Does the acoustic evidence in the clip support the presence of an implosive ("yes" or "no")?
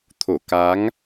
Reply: no